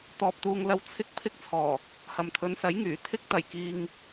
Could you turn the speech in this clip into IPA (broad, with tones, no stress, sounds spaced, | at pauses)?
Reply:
t̪ ɔː˨ p̚ t̪ uː˨ ŋ l ɐ˧ w t͡sʰ ɪ˧ k̚ pʰ ɪ˧ k̚ t͡sʰ ɔː˨˩ | h ɐ˨ m t̪ʰ ɵ˨˧ n s ɐ˨˥ j ŋ yː˨˩ t̪ʰ ɪ˧ k̚ t̪ ɐ˨˩ j k iː˨ ŋ